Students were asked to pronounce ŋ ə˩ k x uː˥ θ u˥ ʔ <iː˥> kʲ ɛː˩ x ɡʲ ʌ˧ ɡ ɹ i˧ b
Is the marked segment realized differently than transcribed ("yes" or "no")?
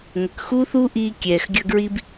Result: yes